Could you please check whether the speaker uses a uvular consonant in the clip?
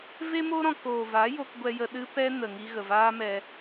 no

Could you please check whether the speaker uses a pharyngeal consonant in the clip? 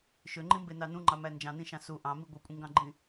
no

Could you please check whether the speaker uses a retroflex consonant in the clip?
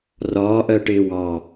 yes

